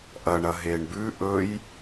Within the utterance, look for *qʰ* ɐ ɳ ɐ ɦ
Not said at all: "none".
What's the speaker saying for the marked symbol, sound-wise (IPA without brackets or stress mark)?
ʔ